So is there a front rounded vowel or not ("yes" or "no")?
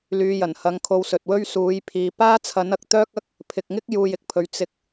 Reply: yes